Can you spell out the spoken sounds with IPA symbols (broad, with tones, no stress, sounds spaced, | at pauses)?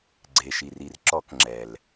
ɡ͡ǀ e˩ ʃ i˩ r i˩ r ǁ ɔ˧˩˧ k ŋ͡ǁ ɛ˩ l